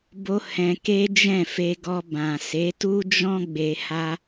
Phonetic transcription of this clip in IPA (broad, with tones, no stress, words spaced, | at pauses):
bo˦ hɛ̃˧ke˦ d͡ʒɛ̃˦˨fe˧ɡɔ˧ bã˨se˨˦tu˦d͡ʒɔ̃˦ ɡ͡be˧ha˦